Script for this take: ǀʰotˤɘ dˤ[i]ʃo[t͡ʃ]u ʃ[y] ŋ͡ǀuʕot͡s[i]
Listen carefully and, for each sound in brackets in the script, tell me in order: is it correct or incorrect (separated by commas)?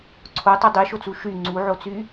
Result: correct, incorrect, correct, incorrect